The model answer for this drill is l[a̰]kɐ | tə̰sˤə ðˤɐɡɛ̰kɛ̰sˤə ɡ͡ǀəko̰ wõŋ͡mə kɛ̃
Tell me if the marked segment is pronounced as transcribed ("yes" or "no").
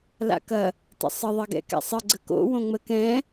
yes